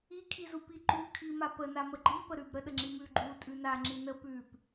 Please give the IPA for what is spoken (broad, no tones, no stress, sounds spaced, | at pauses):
i kʰ i z u p i ǃ u kʰ i m a p ə n a m ə ɡ͡ǃ i p ə ɾ ʉ b ɾ ə ɗ ə ŋ͡ǁ i m ʉ ɡ͡ǃ u tʼ ʉ n a ŋ͡ǁ i n ə p ʉ p